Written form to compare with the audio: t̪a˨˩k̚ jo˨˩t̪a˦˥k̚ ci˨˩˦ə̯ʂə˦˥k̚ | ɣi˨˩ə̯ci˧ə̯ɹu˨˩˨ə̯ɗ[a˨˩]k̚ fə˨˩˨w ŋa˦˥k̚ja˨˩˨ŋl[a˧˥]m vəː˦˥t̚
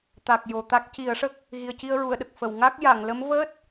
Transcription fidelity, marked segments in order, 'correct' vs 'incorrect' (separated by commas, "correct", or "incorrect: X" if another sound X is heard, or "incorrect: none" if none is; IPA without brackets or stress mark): incorrect: ə˨˩, incorrect: ə˧˥